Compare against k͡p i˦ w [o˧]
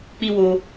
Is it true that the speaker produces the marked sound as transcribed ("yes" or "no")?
yes